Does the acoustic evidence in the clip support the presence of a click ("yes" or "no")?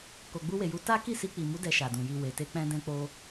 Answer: no